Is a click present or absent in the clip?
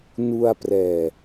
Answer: absent